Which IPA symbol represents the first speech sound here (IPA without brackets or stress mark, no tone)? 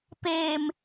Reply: p